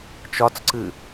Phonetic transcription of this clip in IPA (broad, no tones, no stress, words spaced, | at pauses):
t͡ʃɒt͡sǀɨ